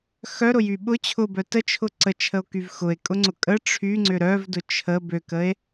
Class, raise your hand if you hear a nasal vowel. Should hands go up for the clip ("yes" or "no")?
no